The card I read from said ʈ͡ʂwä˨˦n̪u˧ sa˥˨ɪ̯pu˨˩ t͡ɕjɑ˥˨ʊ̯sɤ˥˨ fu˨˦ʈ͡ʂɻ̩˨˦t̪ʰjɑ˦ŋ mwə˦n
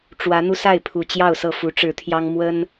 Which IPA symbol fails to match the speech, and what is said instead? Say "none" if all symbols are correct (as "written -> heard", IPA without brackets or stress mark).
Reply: p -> pʰ